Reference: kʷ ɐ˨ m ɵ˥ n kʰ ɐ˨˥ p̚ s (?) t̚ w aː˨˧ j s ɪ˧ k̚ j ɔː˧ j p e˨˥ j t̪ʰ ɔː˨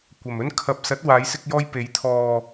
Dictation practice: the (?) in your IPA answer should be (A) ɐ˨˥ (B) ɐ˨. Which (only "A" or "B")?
A